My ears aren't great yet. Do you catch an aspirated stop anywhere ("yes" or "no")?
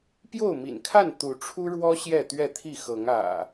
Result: yes